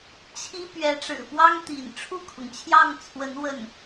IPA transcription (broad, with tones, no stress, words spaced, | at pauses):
t͡ɕʰi˥ pɥɛ˧˥ʈ͡ʂɻ̩˨˩pwɑ˥ŋ t̪ḭ˨˩n ʈ͡ʂʰu˥˩kʰʊ˩ŋt͡ɕʰjɑ˥˩ŋt͡sʰwə˧˥n wə˥˩n